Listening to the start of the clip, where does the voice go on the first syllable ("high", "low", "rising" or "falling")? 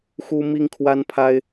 high